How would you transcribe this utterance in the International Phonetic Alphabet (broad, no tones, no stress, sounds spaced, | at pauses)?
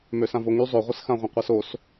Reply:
m ø s ã v o ŋ y zˤ ø ʁʷ ə s x ã ʁʷ œ̃ qʷ a s o s